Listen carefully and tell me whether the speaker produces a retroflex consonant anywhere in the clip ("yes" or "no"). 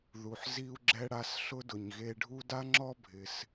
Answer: yes